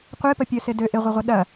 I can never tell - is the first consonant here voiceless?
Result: yes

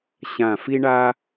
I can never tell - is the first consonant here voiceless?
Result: yes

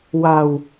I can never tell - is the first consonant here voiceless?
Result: no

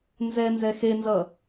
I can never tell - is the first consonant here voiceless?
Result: no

